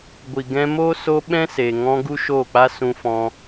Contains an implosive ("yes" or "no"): yes